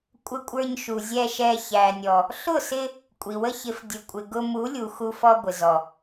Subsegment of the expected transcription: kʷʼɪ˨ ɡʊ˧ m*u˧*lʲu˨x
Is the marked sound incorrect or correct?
incorrect